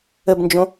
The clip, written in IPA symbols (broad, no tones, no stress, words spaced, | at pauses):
əbnd͡ʒõ